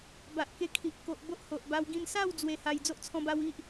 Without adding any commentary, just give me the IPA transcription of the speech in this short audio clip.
b a˨ ʔ k e˧ kʰ i˨ ʔ k o˨ ʔ b o˦ ʔ h o˨ ʔ b a˧ w ɡ ĩ˥˧ n s a˥˧ w d͡z w e˧ h a˧ j d͡z o˦ ʔ t͡sʰ ɔ̃˧ b a˧ w i˦ ʔ

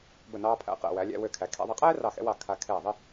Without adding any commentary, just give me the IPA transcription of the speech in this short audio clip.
b ə˧˩ n ɑː˧ pʰ æ̰˧ q ɛ̰˧˩ w æ˩˧ lʲ æ̰˧ w ø˧˩ kʰ æ˩˧ kʰ ɛ̰˧ ðˤ ɪ˧ qʼ ɛː˥ r ɑ˧˩ x ɛ̰˧ w ɑ˧˩ kʰ a˧ kʰ ɛː˧˩ ðˤ ɪ˥˧

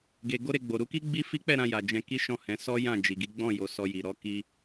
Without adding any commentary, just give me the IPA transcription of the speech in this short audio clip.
ɡ e˧ ɡ o˦ ɾ e˧ ɡ͡b o˨ ɾ u˨˦ k i˦ ɡ͡b i˦ f i˦ k͡p ɛ˦˨ ɾ ã˧ j a˨ d͡ʒ ɛ̃˧ k i˦ ʃ ɔ̃˦˨ h ɛ̃˨˦ s ɔ˦ j ã˦˨ d͡ʒ i˨ ɡ i˨˦ ɡ͡b ɔ̃˦˨ j o˧ s ɔ˧ j i˨ ɾ ɔ˨˦ k i˧

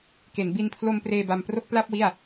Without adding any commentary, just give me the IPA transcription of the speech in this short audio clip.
k e˩˦ n b i˧ n pʰ l o˧ m p r eː˧ b a˧ m p r o˥˩ k̚ p l a˥˩ p̚ w i˥˩ a̯

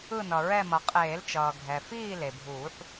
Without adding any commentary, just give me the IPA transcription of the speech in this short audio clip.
ɯ˦˨ n ʌ˩ ɹ ɛ˦˨ m ʌ˩ qʼ eː˨˩˦ l t͡ʃ ʌː˩ ɡʱ ɛ˩ f iː˦˨ l e˩ bʱ uː˨˩˦ ħ

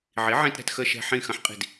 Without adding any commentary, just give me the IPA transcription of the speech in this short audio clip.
ʕ i˩˥ ʕ ĩ˧ t ɾ ɛ̤˧ t x ə˧ ʃ ɛ̤˧ ħ ĩ˧˩ x ɐ̃˧ ħ qʼ i̤˧˩ d

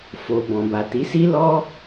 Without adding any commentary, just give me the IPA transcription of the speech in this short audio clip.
f o˨ b ɔ̃˨ b a˨ t i˨˦ s i˦ l ɔ˦

